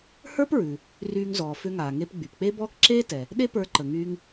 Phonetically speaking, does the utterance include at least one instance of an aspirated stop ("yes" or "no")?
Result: no